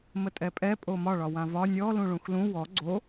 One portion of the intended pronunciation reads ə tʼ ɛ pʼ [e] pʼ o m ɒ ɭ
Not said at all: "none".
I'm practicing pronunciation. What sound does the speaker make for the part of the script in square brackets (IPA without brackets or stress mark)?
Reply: ɛ